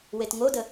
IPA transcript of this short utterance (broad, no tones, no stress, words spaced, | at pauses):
wetŋodə